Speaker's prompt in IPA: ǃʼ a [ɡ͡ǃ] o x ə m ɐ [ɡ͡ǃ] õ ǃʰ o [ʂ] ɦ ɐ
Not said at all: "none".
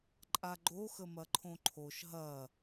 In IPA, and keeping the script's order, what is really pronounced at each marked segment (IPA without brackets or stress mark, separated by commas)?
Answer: ɡ͡ǃ, ǃʰ, ʃ